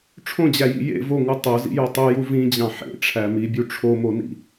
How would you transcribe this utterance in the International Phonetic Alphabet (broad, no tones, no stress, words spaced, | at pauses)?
ʈ͡ʂʰõd͡ʑæjḭ jḛ voŋu tˤozḭjo tˤuju vĩd͡ʑɑ̃ ħḛʈ͡ʂʰæ mibʲu ʈ͡ʂʰomonḭ